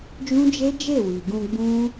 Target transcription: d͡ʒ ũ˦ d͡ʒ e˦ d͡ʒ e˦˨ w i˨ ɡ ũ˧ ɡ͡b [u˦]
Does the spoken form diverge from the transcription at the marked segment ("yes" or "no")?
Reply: yes